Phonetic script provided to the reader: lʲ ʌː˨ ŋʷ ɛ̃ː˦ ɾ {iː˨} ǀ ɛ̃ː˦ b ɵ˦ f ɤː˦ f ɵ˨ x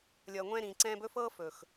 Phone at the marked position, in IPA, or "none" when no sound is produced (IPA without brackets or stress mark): ĩː˨